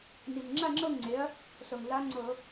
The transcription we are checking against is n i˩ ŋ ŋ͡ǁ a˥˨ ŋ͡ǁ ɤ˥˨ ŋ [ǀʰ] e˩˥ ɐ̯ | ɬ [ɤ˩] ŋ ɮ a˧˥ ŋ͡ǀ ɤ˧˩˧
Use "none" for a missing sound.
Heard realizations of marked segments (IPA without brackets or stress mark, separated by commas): ŋ͡ǀ, ɤ˩